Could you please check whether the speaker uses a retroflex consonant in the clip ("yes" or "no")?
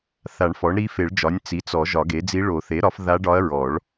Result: yes